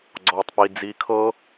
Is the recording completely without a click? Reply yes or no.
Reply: no